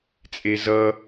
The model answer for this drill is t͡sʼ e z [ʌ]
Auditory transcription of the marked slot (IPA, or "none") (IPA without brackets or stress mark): ʌ